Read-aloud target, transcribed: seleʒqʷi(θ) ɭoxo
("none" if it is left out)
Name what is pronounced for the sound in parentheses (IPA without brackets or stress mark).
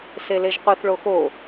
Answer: θ